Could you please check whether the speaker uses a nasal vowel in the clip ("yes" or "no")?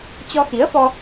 no